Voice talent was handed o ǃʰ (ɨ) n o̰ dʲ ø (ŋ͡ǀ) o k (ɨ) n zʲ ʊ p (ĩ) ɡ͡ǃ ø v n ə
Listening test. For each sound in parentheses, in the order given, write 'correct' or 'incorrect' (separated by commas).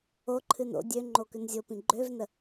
correct, incorrect, incorrect, correct